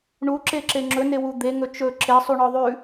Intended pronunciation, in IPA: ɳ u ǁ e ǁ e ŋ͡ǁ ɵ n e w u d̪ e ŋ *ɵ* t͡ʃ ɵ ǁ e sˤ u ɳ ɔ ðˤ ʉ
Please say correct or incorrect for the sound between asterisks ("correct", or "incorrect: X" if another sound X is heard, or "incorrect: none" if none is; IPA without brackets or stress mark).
correct